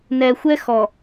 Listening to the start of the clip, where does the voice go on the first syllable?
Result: low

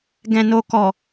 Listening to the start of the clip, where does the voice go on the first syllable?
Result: low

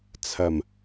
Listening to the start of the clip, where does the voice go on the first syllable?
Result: low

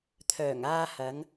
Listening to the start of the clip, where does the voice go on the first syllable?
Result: low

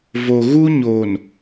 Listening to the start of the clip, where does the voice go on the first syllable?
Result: low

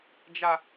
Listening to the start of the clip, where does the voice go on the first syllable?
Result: high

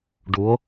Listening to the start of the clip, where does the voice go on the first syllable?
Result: rising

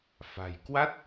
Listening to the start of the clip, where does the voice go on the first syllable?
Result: low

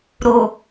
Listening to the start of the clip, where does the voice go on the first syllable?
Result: low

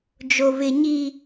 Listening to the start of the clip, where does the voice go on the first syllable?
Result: high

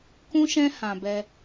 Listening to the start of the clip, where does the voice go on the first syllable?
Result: high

